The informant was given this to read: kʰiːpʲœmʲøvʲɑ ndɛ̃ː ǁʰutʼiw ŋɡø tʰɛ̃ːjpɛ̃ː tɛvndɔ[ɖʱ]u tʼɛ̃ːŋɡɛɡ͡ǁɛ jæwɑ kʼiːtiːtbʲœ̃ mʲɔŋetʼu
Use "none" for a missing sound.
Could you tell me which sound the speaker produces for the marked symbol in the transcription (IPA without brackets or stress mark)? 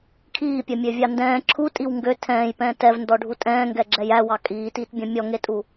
ɖʱ